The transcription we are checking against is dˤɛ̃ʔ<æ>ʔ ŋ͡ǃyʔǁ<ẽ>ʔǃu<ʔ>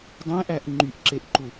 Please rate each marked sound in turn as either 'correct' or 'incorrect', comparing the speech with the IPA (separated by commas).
correct, incorrect, incorrect